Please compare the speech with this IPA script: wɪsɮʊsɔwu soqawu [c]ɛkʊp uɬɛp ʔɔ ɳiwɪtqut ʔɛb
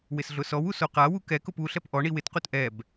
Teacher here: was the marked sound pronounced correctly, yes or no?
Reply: no